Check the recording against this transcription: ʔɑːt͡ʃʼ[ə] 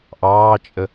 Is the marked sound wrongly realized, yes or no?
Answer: no